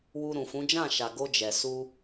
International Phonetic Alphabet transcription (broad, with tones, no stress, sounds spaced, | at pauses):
w u˧ ɾ ũ˨ f ũ˨˦ d͡ʒ ã˦˨ ʃ a˨ ɡ o˧ d͡ʒ ɛ˨ s u˧